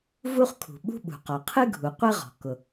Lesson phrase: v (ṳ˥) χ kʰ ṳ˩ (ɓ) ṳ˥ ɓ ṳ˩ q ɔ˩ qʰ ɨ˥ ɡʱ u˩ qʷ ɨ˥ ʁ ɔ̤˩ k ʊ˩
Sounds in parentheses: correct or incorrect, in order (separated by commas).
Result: incorrect, correct